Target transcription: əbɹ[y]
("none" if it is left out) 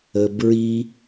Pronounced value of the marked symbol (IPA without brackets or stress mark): i